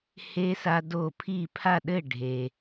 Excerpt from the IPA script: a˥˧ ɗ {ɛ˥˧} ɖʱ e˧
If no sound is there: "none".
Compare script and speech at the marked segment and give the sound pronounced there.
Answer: ɘ˥˧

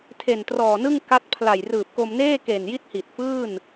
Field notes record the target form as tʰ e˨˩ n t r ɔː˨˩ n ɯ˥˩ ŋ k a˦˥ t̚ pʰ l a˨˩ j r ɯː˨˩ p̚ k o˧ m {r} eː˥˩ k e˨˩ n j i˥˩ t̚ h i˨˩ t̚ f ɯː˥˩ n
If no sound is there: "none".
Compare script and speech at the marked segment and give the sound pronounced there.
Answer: n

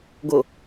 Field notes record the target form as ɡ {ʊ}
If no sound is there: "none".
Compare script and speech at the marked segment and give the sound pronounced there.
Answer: ʊ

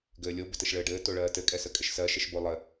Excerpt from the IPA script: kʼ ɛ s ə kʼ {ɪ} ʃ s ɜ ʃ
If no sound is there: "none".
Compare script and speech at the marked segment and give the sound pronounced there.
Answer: ɪ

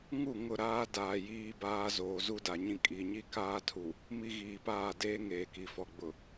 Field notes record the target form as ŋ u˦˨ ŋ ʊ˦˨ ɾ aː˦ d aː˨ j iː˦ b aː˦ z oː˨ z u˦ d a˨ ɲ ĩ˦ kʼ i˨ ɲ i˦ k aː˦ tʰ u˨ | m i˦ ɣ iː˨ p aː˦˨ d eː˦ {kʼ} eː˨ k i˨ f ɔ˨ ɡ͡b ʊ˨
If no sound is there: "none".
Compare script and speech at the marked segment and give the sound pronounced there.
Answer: ŋ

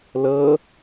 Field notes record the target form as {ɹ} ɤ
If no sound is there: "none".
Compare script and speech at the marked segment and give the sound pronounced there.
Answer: l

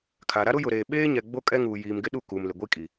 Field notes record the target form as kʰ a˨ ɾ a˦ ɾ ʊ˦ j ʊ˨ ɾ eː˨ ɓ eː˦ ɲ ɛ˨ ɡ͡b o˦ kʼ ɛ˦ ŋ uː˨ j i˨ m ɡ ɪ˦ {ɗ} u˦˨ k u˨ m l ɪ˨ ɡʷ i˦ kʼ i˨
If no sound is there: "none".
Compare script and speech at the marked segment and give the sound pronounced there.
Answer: ɗ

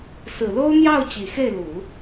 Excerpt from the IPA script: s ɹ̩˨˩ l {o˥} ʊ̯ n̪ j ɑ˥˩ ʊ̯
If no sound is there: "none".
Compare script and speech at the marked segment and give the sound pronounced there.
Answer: o˥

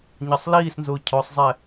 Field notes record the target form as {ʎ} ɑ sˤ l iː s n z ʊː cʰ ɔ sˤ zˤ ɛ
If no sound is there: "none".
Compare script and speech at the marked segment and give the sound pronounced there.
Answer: ɲ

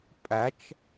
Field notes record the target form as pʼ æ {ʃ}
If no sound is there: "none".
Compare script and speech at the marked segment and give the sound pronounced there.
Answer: t͡ʃ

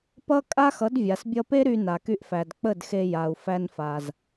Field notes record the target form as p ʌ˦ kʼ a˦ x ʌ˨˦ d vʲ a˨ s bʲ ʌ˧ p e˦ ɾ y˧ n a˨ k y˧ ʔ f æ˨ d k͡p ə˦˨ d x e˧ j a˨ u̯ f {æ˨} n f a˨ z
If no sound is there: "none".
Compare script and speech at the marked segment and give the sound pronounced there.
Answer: æ˧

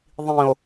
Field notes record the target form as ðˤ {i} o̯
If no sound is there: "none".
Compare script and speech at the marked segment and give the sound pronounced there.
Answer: ĩ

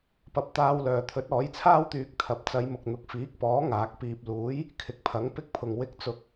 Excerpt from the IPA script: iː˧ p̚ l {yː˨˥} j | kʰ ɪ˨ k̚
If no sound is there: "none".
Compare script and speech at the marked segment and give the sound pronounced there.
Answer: uː˨˥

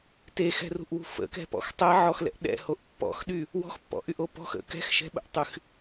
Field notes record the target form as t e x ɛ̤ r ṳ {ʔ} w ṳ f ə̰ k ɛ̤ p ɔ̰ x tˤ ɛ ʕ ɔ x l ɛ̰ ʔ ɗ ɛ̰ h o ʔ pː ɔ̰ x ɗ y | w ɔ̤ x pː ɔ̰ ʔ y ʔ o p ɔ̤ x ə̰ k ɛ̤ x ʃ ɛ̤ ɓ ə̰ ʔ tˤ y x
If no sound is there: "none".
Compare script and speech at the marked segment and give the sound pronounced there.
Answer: ʔ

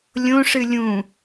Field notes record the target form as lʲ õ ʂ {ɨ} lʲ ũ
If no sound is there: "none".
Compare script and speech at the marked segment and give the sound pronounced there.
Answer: ɨ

